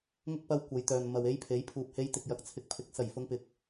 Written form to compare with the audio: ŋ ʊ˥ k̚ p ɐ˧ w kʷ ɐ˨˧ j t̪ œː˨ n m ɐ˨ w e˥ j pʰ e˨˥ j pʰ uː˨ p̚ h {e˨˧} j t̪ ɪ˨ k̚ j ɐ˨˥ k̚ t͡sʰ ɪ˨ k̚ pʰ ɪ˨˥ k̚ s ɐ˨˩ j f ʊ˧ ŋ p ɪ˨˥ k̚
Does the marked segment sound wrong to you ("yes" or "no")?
yes